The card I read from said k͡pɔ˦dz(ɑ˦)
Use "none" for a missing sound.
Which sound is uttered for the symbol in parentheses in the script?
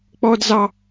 ɑ˦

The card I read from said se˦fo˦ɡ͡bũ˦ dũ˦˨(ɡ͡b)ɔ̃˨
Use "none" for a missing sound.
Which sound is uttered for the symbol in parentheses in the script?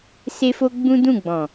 ɡ͡b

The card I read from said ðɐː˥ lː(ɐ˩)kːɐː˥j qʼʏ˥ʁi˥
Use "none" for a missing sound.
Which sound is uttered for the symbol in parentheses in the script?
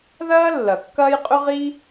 ɐ˩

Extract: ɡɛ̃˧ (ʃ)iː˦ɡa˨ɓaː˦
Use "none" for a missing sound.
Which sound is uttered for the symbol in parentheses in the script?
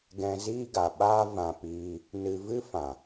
z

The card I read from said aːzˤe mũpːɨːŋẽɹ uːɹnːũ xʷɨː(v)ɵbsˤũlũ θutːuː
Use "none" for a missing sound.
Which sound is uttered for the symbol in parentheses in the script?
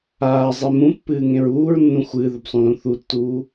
ð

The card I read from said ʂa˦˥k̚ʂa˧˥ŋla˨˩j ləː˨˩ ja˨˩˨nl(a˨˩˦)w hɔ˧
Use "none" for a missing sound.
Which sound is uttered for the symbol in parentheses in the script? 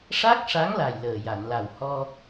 a˨˩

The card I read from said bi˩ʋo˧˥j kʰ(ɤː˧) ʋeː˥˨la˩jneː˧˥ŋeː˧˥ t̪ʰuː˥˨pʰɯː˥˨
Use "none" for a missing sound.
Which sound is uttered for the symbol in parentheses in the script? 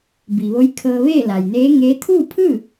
ɤː˧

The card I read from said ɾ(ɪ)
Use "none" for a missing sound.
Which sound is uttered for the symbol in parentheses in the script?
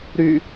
y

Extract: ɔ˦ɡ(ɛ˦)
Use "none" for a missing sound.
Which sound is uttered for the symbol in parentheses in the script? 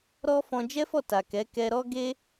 e˦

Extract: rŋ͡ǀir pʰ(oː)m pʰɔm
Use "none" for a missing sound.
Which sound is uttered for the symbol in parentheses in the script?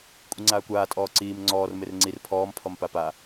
ɔː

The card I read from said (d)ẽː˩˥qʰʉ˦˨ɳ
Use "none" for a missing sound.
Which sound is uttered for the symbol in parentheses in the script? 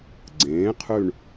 ɡ͡ǀ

